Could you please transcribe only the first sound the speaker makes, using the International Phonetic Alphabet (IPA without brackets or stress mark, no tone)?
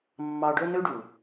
mː